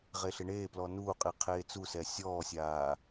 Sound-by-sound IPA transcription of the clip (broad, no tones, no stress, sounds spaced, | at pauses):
ʁ e ɬ ɪ ɳ eː p l ɔ n uː qʼ i qʰ eː t͡s u s ɛ sʲ ɔː sʲ aː